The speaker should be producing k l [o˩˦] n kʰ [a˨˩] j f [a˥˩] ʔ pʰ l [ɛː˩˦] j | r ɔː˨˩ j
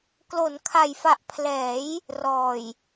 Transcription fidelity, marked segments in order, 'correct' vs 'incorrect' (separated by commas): correct, incorrect, incorrect, correct